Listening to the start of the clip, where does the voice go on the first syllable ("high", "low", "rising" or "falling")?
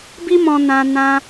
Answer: high